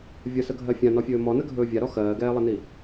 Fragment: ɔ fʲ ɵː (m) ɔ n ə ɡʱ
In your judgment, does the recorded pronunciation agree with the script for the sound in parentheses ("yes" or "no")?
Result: yes